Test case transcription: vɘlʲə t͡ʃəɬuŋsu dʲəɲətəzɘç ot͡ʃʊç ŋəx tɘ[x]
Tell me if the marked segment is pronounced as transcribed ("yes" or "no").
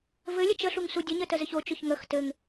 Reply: no